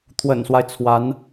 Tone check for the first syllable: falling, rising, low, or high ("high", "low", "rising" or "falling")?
low